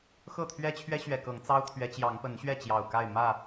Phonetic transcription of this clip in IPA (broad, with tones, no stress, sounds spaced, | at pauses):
x ɤ˥˨ t̪ʰ ɥ ɛ˦ t͡ɕʰ ɥ ɛ˦ ɕ ɥ ɛ˨˩ k ɤ˨˦ ŋ t͡s ɑ˦ ʊ̯ t̪ʰ ɥ ɛ˨˦ t͡ɕ j ɑ˨˦ ŋ p ə˨˦ n ɕ ɥ ɛ˥˨ t͡ɕ j ɑ˨˩ ʊ̯ k a˥˨ ɪ̯ m ä˥˨